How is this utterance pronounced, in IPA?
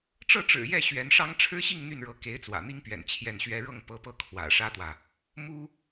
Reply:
ʈ͡ʂ ɤ˥˩ ʈ͡ʂ ɻ̩˨˩ j ɛ˥˩ ɕ ɥ ɛ˧˥ n ʂ ɑ˥ ŋ ʈ͡ʂʰ ɻ̩˥ ɕ i˥˧ ŋ n̪ y˥˩ n ɻ ɤ˧˥ k e˧˥ ɪ̯ t͡s w ä̰˨˩ n̪ i˥ ŋ p ɥ ɛ̰˨˩ n t͡ɕʰ j ɛ˥˩ n ɕ ɥ ɛ˥ ɻ ɤ˥˩ ŋ p ɤ˧˥ p ɤ˥˩ kʰ w ä̰˨˩ ʂ ä˥ t̪ w ä˨ | m u˥

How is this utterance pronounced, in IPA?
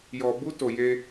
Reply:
j ɔ˧ b u˦ t o˧ j e˦

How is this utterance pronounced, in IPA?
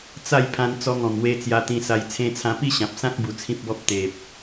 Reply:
t͡s a˥˧ j pʰ ã˧ n t͡s ɔ˧ ŋ ɔ̃˨˩ m w e˧ t͡s j a˧ t̪ ĩ˧ s a˧ j t͡sʰ ẽ˧ t͡sʰ ã˧ p i˥˧ ɕ ã˨ p̚ s ã˦ k̚ b u˧ t͡sʰ ĩ˦ p̚ b ɔ˦ p̚ t̪ e˨ p̚

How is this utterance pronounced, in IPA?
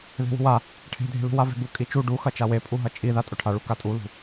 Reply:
ð e̤ w ṳ w a | ʈʰ e̤ dʱ e̤ l ṳ w a v e̤ b u kʼ i t͡ʃ u ɖ u x ɐ t͡ʃ a w e pʼ u ɦ ɐ t͡ʃʼ i ð a tʼ ʊ ʈʰ a ɭ u k a tʼ u l ṳ

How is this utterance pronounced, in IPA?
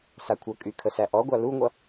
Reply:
s a kʷʰ ʌ kʼ y kʰ ə s æ ʔ ɔ ɡʷ a l u ŋʷ ʌ

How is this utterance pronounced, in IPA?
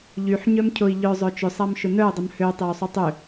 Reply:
ʎ y ħ ɲ œ m cʰ ʊ i̯ ʎ œ zˤ œ t͡ʃ ʏ sˤ a m ʃ ʊ n œ u̯ dˤ ə m h ø tˤ e u̯ sˤ y tˤ ʏ

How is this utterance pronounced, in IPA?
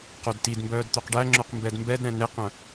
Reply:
q o d t i d m b œː d t̪ œ q ɖ æ ŋ͡ǁ œ q m b ɛ d m b ɛ d ɾ ɛ̃ n e q œ̃

